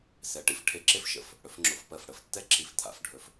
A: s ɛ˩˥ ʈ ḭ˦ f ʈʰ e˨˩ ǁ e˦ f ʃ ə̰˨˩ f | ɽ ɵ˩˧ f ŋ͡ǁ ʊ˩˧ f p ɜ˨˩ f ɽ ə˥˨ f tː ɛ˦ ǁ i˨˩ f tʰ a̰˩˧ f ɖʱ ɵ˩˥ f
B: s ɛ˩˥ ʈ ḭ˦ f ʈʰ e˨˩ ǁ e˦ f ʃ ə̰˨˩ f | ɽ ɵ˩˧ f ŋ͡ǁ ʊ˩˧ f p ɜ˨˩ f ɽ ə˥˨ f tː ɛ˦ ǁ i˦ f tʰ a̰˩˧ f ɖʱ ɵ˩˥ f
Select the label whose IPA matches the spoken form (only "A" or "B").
A